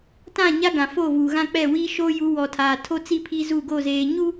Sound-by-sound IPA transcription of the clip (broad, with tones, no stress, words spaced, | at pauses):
tã˦˨ɲa˦ɡã˨ fo˦˨vuː˨ɣã˦k͡pɛ˦˨ wiː˦ʃoː˦ ju˨˦wɔ˨tʰaː˨ tʰo˦t͡si˦ pʰi˦zu˦˨ɡo˦˨ zeː˨ɲu˦